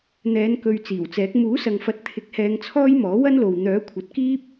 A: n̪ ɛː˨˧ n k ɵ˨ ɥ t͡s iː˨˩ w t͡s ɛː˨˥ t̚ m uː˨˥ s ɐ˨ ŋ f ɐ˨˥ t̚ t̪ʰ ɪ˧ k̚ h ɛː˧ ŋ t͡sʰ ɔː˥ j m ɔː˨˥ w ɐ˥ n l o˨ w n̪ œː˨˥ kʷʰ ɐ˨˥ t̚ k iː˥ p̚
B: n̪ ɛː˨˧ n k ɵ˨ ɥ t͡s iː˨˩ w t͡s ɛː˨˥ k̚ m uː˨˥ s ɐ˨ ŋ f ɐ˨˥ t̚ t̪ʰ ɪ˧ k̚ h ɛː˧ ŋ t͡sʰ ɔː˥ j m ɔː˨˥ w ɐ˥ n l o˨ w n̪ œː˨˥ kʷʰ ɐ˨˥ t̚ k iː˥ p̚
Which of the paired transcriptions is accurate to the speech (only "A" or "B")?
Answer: B